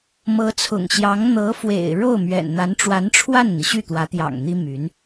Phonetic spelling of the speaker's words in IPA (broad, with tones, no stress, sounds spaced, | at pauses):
m ɤ˧˥ t͡sʰ ʊ̰˨˩ ŋ ɕ j ɑ˧˥ ŋ n̪ ɤ˧˥ f w ḛ˨˩ ɪ̯ ɻ o˥˩ ʊ̯ m ɥ ɛ̰˨˩ n n̪ a˧˥ n ʈ͡ʂ w a˧˥ n ʈ͡ʂʰ w a˥˩ n n̪ i˩ ɕ y˥˩ t̪ w ä˧˥ t̪ j ɑ̰˨˩ ŋ n̪ i˥ m y˧˥ n